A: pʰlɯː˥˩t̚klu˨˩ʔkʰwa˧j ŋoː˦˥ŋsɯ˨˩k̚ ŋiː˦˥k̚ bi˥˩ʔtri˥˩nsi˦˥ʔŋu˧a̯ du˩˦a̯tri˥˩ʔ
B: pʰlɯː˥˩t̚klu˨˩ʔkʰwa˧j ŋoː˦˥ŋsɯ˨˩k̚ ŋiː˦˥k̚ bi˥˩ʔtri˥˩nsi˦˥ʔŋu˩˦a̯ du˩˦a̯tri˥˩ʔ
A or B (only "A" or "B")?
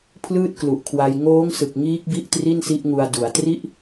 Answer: A